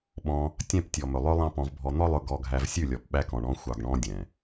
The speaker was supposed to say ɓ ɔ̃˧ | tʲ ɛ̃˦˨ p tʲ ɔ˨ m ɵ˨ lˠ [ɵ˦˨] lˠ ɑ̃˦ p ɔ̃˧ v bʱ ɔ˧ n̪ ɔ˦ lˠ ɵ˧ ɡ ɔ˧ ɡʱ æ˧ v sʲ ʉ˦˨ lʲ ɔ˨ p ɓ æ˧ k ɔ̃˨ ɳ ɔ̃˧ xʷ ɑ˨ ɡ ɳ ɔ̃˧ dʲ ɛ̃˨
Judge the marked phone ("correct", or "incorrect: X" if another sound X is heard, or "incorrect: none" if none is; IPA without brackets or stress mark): incorrect: ɵ˧